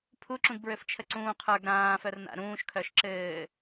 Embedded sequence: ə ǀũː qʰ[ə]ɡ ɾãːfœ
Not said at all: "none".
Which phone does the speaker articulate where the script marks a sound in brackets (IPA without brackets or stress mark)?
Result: ə˞